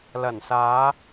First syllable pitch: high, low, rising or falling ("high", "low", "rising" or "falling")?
low